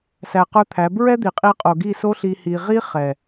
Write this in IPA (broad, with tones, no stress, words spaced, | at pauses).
sæ˧qə˞˦t̪ʰæ˨˦ bɹɛ˦d̪i˨qʼi˧qʼo˨ ɡi˦˨ so˦ɬi˧ hi˧ ʁi˦ χɛ˨